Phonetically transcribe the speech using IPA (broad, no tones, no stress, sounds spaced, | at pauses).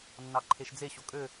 nː ɑ ǃʰ e ʃ d͡z e ɕ o kʼ ø